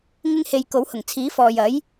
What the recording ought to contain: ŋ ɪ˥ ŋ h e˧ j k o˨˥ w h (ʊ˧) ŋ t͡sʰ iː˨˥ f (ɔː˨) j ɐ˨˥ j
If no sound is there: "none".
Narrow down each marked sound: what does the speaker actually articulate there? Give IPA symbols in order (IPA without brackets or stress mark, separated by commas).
ʊ˨˩, ɔː˨